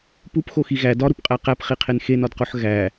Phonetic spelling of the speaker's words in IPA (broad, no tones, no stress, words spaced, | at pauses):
pupxoxi ɣæ dɒɾupqʼæ qæpχiqʰen xenɒdqoħ ɣæ